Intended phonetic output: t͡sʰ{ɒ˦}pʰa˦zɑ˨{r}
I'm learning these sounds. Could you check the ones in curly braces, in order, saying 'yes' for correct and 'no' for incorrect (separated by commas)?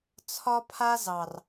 yes, yes